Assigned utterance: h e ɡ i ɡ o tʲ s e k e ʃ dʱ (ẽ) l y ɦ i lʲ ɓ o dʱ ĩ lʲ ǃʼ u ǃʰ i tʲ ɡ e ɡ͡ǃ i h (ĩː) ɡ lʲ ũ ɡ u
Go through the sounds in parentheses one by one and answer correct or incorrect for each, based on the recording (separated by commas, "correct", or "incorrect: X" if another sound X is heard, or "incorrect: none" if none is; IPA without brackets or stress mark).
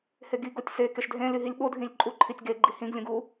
correct, incorrect: ĩ